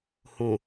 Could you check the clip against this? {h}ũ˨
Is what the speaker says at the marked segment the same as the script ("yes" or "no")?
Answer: yes